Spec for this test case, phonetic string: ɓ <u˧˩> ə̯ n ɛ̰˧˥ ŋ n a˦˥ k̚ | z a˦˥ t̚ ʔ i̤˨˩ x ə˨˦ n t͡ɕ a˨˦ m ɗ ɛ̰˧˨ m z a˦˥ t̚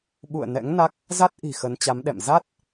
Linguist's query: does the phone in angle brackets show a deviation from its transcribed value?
yes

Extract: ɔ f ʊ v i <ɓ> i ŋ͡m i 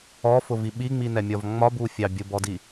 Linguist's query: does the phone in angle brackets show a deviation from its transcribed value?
no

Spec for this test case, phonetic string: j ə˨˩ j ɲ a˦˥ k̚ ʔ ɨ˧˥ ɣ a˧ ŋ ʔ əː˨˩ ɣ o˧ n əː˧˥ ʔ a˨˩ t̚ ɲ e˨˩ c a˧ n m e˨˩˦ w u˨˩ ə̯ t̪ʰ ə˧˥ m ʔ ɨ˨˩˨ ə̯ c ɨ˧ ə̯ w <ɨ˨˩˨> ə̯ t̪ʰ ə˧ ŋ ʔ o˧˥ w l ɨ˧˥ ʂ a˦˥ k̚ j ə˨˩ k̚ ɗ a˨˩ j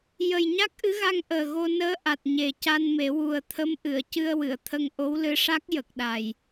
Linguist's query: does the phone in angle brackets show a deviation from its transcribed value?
no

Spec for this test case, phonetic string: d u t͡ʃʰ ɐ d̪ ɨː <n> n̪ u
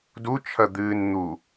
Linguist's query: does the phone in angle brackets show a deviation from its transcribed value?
no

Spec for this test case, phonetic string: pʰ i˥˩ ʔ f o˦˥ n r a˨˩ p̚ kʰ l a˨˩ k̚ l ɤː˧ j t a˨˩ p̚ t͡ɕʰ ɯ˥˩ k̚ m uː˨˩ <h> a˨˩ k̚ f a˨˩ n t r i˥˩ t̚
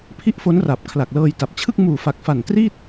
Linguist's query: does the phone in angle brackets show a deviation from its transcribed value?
yes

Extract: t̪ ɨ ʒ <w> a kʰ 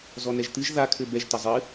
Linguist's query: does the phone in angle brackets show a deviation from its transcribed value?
yes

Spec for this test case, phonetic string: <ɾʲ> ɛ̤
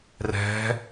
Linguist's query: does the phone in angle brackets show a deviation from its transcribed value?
yes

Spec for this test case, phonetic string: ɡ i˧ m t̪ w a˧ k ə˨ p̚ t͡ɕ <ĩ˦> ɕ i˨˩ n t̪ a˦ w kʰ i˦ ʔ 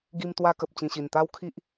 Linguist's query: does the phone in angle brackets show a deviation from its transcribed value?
yes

